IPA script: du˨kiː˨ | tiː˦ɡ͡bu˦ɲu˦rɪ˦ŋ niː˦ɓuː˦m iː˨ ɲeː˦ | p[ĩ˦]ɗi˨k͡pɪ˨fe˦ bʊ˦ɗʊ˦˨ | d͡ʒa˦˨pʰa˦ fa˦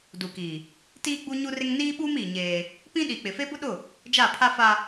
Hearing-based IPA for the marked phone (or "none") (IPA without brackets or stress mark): ĩ˦